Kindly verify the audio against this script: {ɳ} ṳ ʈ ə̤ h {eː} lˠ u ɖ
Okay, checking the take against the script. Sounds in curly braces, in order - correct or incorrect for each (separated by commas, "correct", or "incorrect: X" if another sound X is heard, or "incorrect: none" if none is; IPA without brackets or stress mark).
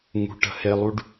incorrect: ŋ, incorrect: e